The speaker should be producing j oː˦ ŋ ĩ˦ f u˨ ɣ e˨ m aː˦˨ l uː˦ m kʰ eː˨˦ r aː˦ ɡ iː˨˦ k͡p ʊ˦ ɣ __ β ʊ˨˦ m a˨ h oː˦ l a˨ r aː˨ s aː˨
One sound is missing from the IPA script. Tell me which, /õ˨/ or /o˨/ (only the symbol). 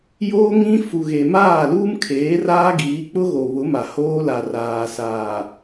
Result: o˨